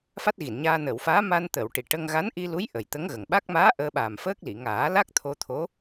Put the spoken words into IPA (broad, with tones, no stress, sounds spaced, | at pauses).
f a˦˥ t̚ ɣ i˨˩˨ n ɲ aː˧ n əː˨˩˨ w f aː˧˥ m a˧ n t̪ əː˨˩˨ w ʈ i˨˩˨ ʈ ə˧ ŋ ɣ a˧˥ n ʔ i˧ l u˧˥ j ʔ ə˨˩ j t̪ ə˧˥ ŋ ɣ ə˨˩ ŋ ɓ a˦˥ k̚ m aː˧˥ ʔ əː˧ ɓ aː˨˩ m f əː˦˥ k̚ l i˨˩˨ ŋ aː˨˩˦ l a˦˥ k̚ t̪ʰ o˧ t̪ʰ o˧˥